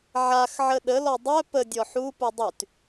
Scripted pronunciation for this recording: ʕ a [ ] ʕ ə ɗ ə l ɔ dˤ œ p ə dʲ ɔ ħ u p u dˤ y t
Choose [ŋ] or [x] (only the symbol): x